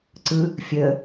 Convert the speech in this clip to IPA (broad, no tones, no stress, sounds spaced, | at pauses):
ǀ ɯ | fʲ əː